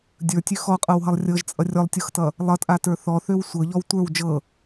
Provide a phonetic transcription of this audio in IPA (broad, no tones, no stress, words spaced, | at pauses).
dʲə˞tʲø xɔqʼɤwɦʌlˠ rʲɤʒt͡sʼʌ rʲɔlˠtʲɤxtʌ | lˠʌtʼatə˞ θɔθøw sʷɤʎɔw tʷə˞w d͡ʒɤ